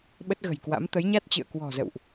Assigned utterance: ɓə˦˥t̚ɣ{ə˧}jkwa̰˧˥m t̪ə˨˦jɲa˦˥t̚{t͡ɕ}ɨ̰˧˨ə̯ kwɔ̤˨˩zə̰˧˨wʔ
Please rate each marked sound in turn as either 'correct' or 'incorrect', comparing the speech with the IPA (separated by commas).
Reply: incorrect, correct